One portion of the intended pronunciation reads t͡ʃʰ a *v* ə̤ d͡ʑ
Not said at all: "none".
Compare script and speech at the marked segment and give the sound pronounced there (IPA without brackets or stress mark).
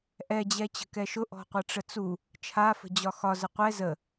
f